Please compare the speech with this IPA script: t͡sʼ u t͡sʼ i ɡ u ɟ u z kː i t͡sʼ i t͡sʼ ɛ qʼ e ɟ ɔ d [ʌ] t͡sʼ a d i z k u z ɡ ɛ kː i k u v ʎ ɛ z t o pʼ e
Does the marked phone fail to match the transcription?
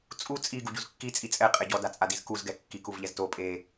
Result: yes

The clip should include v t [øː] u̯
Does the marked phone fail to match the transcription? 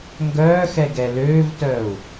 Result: yes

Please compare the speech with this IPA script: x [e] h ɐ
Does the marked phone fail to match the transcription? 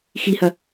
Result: yes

